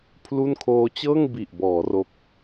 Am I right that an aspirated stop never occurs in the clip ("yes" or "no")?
no